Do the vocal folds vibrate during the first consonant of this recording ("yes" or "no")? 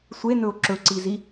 no